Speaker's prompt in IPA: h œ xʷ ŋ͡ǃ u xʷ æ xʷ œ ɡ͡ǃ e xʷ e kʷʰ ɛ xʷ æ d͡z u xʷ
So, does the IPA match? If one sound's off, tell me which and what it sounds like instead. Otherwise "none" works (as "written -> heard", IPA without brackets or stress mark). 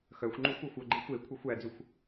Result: h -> x